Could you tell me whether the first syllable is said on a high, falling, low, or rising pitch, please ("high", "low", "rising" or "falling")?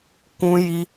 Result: high